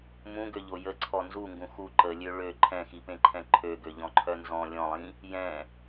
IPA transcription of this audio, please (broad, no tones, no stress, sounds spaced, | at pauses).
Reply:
m ũ ɡ ø ʎ o j ə ǀʰ ɔ n z u ŋ ɡ ũ x u ǃ ə lʲ ø ɭ ø ǃʰ ɛ̃ x i p ẽ ǃʰ ɛ̃ ǃʰ ø ɡ ø ʎ ɔ̃ ǃʰ œ n z ɔ̃ lʲ ɔ̃ lˠ ĩ | j ɛ̃